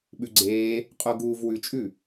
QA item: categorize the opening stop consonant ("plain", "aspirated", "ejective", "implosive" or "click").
implosive